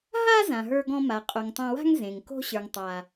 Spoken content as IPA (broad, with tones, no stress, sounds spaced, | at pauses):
ɦ a˦ z ã˨ ɦ ə˞˧ ɡ ɔ̃˧ m a˨ qʼ o˨ ŋ tˤ ɐ̃˧ w a̤˦ ŋ z ẽ˨ ŋ k o̤˦ ɕ ə˞˨ ŋ tˤ a˨